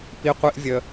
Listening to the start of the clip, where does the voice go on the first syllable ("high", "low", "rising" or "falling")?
low